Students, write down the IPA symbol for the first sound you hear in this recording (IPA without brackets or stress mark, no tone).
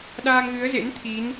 ɗ